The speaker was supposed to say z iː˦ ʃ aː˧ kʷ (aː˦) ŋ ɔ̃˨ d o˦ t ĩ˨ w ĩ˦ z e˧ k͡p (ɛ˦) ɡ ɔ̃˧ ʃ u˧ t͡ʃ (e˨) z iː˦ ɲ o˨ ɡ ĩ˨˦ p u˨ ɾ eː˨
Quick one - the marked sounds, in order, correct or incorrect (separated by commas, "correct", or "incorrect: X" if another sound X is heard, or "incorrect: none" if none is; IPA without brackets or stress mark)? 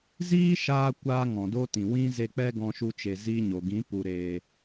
correct, correct, correct